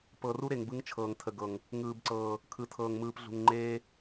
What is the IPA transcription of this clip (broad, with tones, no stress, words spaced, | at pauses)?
pɤ˨ru˦ɾe˨ŋ bɯ˦ŋt͡ʃʰɤː˨ŋ tʰə˨ɡɤ˨ŋ | ŋɯː˨bǀɤː˨ | kʰɯ˨tʰɤː˨ŋ mɯː˨pɮṳ˨ŋ ŋ͡ǃeː˦